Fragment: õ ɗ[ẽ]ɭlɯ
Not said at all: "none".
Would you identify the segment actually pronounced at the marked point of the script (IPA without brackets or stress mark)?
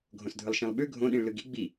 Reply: ĩ